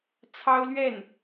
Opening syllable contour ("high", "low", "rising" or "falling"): high